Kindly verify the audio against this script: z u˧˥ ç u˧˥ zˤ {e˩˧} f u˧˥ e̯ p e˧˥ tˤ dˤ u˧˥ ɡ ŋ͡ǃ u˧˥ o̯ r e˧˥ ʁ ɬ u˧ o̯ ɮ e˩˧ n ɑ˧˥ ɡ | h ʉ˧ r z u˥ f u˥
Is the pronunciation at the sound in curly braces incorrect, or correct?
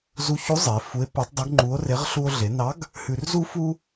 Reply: correct